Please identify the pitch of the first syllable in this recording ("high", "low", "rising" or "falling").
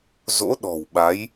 rising